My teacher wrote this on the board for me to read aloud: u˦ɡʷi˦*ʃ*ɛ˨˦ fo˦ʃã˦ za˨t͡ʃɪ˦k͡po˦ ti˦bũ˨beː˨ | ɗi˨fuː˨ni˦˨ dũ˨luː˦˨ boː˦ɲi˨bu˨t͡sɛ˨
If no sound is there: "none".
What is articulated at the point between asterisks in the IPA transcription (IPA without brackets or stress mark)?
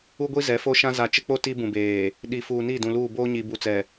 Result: z